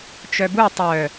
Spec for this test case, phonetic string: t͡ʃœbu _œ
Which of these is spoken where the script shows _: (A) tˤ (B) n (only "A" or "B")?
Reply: A